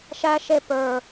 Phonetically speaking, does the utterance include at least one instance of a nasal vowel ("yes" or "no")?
no